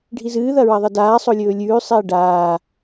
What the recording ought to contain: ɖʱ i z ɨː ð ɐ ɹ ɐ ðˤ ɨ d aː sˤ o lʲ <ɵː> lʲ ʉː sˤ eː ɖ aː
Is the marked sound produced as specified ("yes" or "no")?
yes